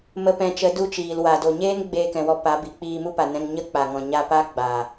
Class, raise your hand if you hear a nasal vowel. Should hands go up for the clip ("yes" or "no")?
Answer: yes